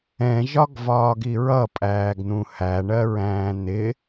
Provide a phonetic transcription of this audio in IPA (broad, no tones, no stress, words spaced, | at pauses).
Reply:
ɛ̃ʒɒɡvɒːɡi ɹʌpʼæːɡn̪ũ hæɳɜɹæ̃ː n̪ɪ